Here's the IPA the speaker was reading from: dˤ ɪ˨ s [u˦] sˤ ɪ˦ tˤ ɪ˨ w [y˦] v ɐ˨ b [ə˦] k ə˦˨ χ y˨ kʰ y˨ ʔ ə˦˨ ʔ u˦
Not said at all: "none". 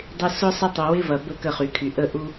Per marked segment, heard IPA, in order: ʊ˦, ɪ˦, ə˦

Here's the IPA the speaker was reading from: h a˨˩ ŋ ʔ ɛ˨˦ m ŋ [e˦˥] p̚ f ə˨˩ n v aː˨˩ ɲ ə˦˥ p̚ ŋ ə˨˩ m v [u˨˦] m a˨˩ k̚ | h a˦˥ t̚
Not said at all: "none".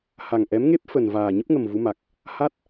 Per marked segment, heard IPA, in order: e˦˥, u˨˦

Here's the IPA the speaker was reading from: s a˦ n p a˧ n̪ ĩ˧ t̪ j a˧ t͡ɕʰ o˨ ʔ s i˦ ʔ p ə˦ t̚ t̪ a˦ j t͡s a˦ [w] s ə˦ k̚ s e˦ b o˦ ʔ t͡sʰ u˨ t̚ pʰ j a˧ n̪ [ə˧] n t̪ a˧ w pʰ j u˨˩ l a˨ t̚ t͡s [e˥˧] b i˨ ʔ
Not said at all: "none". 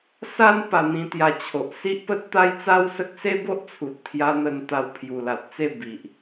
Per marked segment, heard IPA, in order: w, ə˧, e˥˧

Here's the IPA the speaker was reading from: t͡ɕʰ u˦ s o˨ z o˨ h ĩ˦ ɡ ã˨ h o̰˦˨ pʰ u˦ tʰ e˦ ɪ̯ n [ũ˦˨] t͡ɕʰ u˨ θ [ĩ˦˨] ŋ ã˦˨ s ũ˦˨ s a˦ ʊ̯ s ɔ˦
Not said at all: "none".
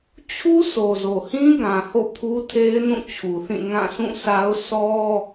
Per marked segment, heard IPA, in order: ũ˦˨, ĩ˦˨

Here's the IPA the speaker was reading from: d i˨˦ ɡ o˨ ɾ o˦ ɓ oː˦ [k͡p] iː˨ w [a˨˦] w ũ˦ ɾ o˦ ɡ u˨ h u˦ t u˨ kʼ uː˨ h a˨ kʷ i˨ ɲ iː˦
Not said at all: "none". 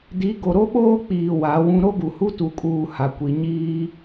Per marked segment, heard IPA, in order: k͡p, a˨˦

